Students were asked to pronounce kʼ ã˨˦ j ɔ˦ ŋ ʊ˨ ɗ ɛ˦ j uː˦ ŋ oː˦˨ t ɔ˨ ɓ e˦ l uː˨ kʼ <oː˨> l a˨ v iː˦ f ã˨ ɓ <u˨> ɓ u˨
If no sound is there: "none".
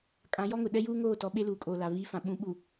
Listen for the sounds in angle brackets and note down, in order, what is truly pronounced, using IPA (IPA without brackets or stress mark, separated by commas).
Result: oː˨, ũ˨